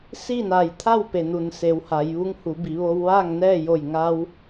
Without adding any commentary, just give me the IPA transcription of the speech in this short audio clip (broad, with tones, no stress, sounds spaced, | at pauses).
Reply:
s i˥˨ n a˧˩ j t̪ʰ a˥˨ w p e˩ n u˩ n s e˩˧ w h a˩˧ j ʋ u˧˥ ŋ h u˩˧ b i˩˧ ʋ o˧ w ʋ aː˥˨ ŋ n ɛː˥˨ j o˧˩ j ŋ a˧ w